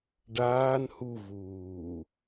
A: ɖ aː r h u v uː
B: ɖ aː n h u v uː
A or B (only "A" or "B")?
B